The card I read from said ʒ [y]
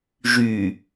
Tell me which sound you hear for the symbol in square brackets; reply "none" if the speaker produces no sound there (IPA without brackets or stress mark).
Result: y